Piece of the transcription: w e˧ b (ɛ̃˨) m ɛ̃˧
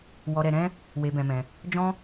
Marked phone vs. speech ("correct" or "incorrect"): incorrect